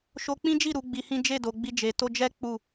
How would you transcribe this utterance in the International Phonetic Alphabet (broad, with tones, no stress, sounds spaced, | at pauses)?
ʃ o˧ k͡p ĩ˦ d͡ʒ i˦˨ ɾ u˨˦ ɡ͡b i˧ h ĩ˦ d͡ʒ e˦˨ d o˨ ɡ͡b i˧ d͡ʒ e˨ t o˧ d͡ʒ ɛ˦ k͡p u˦˨